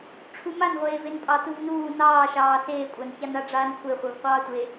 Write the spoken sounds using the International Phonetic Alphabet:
ʈ͡ʂʰumanʁʷeːven pʼɑtuvnuː nɑːʃɑː seːkʷʼançana ɖ͡ʐaːnkʷʰeχʷev qʷɑːtʷe

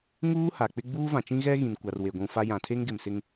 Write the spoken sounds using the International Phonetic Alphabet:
ŋuː˦ ha˨k͡pɪ˦ ɡ͡buː˦vã˨t͡ʃĩ˦ɣɛ˦ ɣĩ˨nkʷa˨r we˨ɡʷũ˨fa˦ jã˨tʰe˦ŋɡɪ˨m sɪ˦ŋ

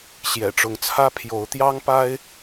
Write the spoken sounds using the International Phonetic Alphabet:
ɕjɛ̰˨˩ʈ͡ʂʊ˨˦ŋt͡sʰä˦ pʰjo˨˦ʊ̯t̪jɑ˦ŋpa˦ɪ̯

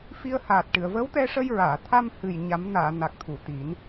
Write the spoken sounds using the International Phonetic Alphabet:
fi˧ə̯haː˨˩t̚ʈɨ˨˩˨ə̯ və˧˥wt̪ɛ˧ʂə˧j ɹaː˨˩˨t̪ʰa˧mhɨ˨˩j ɲa˨˩˦mnaː˨˩˨ na˨˩k̚t̪ʰu˨˩˨t̪i˨˩˦n

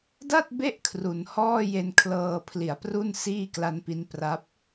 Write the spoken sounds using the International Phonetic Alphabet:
da˥˩t̚be˦˥ʔ kʰru˩˦nhɔː˥˩ je˧nkʰlɤː˧pʰli˩˦a̯pru˥˩n siː˥˩kla˦˥npi˦˥n pra˦˥p̚

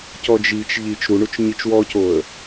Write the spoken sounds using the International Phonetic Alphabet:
cɔd͡ʒit͡ʃ ʎit͡ʃ ɾuɳut͡ʃ ɲit͡ʃwɔcoə̯

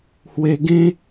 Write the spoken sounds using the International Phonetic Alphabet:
hwe˧ɡẽ˦

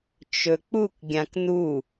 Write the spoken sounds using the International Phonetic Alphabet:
t͡ʃɵk͡puk ɡʲãknu

